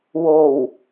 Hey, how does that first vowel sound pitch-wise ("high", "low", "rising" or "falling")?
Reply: low